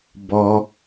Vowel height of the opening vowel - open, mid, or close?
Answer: mid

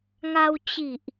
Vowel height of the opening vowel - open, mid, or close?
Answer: open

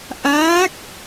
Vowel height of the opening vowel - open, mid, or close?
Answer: open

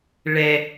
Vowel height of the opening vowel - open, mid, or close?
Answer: mid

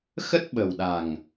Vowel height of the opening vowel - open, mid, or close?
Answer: mid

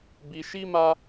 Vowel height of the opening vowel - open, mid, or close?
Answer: close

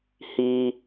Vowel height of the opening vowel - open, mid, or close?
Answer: close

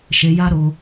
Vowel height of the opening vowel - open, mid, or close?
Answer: mid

